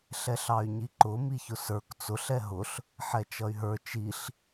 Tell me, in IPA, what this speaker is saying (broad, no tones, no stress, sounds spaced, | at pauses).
ɬ ɛ ɬ ɑ y̯ ɲ i ǃ ʊ m i ç ʊ s ə˞ k t͡s ʊ ɬ ɛ ɦ ʊ ɬ | ħ ɛ t͡ʃ ʌ y̯ ɦ ə˞ t͡ʃ i ɬ